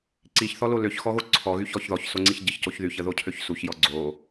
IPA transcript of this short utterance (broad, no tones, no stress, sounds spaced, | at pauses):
ǀ i ç θ ɔ l o l ø ç x ɔ ɣ o ǀʰ ɔ ɣ y ç ɔ ç ð ɔ ç s o ŋ͡ǀ i ç ɟ ə ç c o ç ð y ç ə ð o cʰ ø ç s u ç j ɔ ɡ͡ǀ o